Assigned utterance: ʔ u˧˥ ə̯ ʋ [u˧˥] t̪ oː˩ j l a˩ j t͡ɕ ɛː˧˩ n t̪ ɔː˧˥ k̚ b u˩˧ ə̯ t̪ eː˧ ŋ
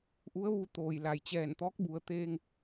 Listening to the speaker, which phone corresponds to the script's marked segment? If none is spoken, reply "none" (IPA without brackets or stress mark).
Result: u˧